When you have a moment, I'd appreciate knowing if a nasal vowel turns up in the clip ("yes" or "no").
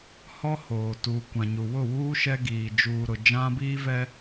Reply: yes